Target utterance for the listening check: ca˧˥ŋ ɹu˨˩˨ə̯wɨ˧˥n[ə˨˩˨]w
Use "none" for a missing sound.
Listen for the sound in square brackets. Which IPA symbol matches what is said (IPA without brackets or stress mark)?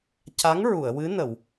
ə˨˩˨